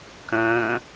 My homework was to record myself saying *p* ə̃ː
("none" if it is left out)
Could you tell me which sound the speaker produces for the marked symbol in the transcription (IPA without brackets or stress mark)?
k